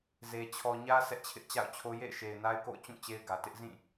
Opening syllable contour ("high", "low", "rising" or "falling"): low